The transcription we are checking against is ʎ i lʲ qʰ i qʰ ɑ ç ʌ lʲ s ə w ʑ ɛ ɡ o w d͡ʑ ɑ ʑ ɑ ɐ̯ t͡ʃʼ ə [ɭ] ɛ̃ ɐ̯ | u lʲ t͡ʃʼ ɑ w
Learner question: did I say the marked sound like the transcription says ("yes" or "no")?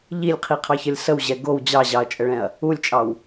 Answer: yes